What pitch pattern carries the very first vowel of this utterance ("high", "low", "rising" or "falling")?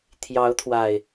rising